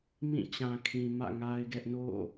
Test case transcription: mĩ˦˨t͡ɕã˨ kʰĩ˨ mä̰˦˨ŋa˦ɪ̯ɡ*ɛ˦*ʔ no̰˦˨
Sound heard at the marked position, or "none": ɛ˦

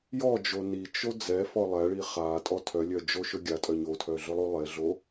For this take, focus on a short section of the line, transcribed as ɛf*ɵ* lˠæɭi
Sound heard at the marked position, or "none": ɔ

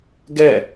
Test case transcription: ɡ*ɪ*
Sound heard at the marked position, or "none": ɛ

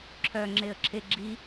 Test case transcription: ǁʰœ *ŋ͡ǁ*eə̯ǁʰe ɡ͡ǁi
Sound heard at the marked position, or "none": ŋ͡ǁ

